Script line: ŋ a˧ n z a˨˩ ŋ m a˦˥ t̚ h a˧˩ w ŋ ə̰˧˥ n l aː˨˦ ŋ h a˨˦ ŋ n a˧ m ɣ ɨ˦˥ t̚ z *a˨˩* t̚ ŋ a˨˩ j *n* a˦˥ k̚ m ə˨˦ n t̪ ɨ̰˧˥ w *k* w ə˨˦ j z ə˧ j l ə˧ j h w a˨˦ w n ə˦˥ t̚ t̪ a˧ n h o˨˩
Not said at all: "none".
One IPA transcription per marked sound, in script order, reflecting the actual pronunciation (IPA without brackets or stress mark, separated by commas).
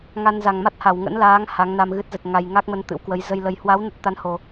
ə˨˩, ŋ, k